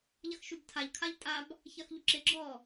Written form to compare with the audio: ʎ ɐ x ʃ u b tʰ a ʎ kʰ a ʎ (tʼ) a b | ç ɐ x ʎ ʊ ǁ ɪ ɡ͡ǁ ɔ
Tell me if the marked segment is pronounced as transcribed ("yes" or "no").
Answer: yes